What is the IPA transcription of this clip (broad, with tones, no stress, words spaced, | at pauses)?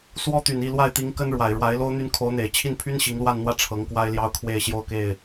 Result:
swɔ˥ t̪y˨˩n i˥˧ lwa˥˩ɪ̯t̪i˧˥ŋ kə˥nɻwa˨˩ɪ̯ ɻwa˧˥ɪ̯lo˥ʊ̯ n̪y˥n kʰo˧˥ʊ̯n̪e˨˩ɪ̯ t͡ɕʰi˥˩npʰy˥n ɕi˧˥ŋlwa˥˧nn̪wä˥˩ ʈ͡ʂʰɤ˧˥ŋkwa˥ɪ̯ljɑ˥ʊ̯kʰwe˥˧ɪ̯ ɕjo˥˧ʊ̯ke˥˩ɪ̯